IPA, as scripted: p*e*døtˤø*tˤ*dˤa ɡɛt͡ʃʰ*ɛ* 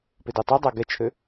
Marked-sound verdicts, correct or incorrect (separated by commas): correct, incorrect, incorrect